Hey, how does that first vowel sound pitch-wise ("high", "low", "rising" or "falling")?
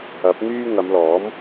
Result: rising